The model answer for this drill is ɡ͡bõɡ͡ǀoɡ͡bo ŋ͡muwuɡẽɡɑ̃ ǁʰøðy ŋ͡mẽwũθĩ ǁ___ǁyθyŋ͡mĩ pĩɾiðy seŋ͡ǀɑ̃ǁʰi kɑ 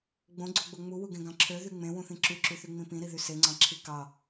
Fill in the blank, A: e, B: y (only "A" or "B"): B